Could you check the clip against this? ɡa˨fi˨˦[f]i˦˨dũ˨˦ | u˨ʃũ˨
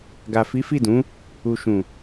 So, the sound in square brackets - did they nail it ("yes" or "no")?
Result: yes